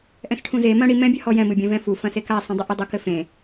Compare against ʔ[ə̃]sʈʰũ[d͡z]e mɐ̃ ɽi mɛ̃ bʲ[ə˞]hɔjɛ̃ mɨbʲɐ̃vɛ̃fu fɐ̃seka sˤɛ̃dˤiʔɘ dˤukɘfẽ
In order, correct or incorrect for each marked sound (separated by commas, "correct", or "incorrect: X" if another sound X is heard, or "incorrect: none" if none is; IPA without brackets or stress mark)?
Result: incorrect: ɛ̃, incorrect: z, incorrect: ɐ